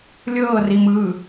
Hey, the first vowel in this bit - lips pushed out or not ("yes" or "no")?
no